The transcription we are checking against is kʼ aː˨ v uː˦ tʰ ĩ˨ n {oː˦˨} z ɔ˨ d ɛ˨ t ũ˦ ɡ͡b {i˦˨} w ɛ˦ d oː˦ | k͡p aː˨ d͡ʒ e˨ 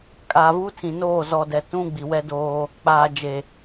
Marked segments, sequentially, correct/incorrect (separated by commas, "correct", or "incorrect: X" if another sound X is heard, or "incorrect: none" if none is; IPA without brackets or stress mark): correct, incorrect: i˨